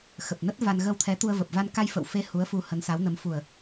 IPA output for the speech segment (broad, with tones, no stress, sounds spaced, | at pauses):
x ə˨˩ p̚ n ə˦˥ t̚ v a˧ n ɣ ə˧ w t̪ʰ ɛ˨˦ t̪ u˧ ə̯ v ə˨˩ p̚ v a˧ n k a˧ j f ə̰˧˨ w f e˨˦ h u˨˦ ə̯ f u˧ h ə˨˦ n s a˨˦ w n ə˨˦ m f u˨˩ ə̯